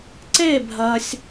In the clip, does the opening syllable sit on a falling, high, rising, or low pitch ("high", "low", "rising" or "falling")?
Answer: falling